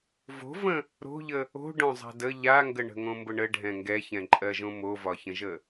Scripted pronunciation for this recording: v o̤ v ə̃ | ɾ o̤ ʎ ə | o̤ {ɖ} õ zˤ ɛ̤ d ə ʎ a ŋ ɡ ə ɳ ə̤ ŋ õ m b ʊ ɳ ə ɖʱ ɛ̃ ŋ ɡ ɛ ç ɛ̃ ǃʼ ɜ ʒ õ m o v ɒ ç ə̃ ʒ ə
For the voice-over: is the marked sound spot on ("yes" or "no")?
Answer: yes